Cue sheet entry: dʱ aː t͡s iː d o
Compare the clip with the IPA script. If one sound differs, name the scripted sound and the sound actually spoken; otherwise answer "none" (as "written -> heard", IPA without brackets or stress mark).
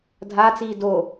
none